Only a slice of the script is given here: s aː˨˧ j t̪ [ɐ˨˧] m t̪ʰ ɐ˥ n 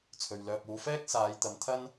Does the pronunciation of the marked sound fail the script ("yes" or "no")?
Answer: no